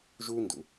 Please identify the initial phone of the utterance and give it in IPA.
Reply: ʒ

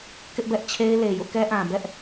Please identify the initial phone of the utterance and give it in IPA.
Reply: k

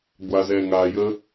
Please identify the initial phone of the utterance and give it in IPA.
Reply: ɡʷ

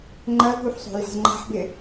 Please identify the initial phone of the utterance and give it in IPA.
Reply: ŋ͡ǃ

